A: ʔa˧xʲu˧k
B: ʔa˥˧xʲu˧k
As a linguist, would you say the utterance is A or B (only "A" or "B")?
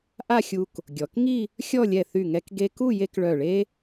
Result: B